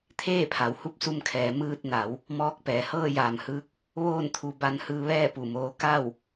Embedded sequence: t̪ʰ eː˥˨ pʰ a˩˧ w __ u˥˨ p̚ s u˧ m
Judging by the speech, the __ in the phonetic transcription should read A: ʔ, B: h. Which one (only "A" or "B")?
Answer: B